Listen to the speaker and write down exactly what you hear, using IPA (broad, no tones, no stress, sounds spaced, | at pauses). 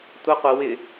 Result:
tʷ ɪ qʷ ɪ w ɪ